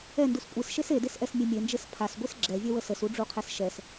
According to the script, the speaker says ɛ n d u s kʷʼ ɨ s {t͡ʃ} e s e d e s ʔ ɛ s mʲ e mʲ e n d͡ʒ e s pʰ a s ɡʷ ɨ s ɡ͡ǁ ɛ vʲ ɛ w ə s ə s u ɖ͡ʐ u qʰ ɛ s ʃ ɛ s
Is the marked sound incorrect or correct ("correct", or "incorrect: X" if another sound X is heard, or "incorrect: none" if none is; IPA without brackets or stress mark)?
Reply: incorrect: ʃ